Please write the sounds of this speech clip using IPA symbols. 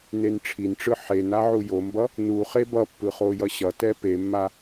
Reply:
nenʈ͡ʂʰinʈ͡ʂɯ ħen aʕujombʌ | nu χebʌpːɯ χojʌɕʌtɛ pemːa

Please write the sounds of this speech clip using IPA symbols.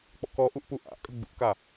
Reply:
k͡pɔ̰kɔʔuʔ puʔa̰ʔkʼə ɡ͡bṵka

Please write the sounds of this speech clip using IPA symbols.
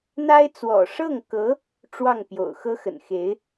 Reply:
n̪a˥ɪ̯t͡swɔ̰˨˩ ʂɤ˥˩ŋkɤ˧˥ | ʈ͡ʂwɑ˥˩ŋpjo̰˨˩ʊ̯xɤ˥ xə̰˨˩n xe˧˥ɪ̯

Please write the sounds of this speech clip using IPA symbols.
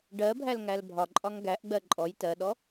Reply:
ɖɜbʱælŋæl bʱɒǃʼɒŋ ɡæʔɡ͡bɜ ǃʼɔj tɜɗɔ

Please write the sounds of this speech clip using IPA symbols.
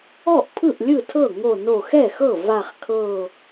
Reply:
ɔ˥˩ʔpʰɯ˥˩ʔ lʲɯ˥˩tʰɤ˥˩ŋo˧˩ no˧˩xɛ˥˩xɤ˥˩ va˧˩χkʰɤ˧˩

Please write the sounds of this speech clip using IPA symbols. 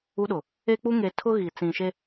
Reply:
u˦ɗʊ˨ | e˦k͡pu˦ŋe˨ tʰʊ˦ ɣi˨ t͡sĩ˨ʃe˦

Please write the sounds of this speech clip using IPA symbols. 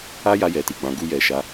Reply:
a˦ja˧jɛ˨ ti˨ɡ͡bã˨˦ɡu˦jɛ˧ ʃa˧

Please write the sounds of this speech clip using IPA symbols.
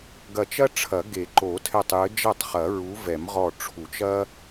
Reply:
ɡɐ˧˩ t͡ʃɐ˥ ʈ͡ʂʰɐ˨˩˦ ɡe˨˩˦ǃo˨˩˦tʰɛ˧˩tˤjɘ˨˦ d͡ʒɐ˥˩tˤχɐ˨˩˦ ɹu˨˦vɛ˨˩˦mʁɔ˧˩ ʈ͡ʂʰu˨˩˦t͡ʃɐ˥

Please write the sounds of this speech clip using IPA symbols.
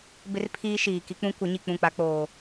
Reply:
bɪ˦r pʰiː˦ ʃiː˨ ki˦k͡pũ˦ kʷɪ˨˦ ɲi˨k͡pũ˦˨k͡pa˦ k͡poː˦

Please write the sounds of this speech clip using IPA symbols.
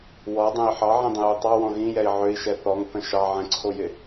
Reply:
wɔdˤɛ̃i̯ ħɑʕĩdˤə̃jø tˤɑwɔ̃ ɣĩjɛi̯ ʕøi̯ʃɛ θɔŋθə̃ ʃɑʕɛ̃ǀʰojɪ

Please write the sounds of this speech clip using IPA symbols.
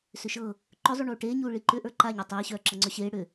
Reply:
sʏʃɤ | ǃʏzˤu ɳuːʈeːɲuː ɭiǃʏ ʔə˞ǃaɲœ tˤeːɕœː ǁɤŋ͡ǀœɕeː ɽʏ

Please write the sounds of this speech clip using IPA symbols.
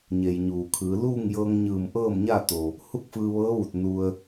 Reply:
ɲe˩j ɲuː˩kʰɯː˩˧ luː˥˨ŋjɤː˧ŋɲɯː˧˩m ʔɤː˥˨mɲa˥˨t̪o˩ | hu˥˨k̚fɯː˧ʋɤː˧˥ʋu˧˩t̚ nu˧ə̯

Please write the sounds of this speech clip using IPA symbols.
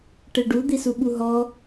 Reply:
ʈeɖu d̪isuɓuɦɔ

